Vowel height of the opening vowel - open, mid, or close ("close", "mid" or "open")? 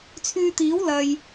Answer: close